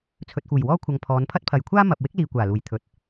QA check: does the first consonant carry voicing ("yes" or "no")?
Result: no